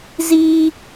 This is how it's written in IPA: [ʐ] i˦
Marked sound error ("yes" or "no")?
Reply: yes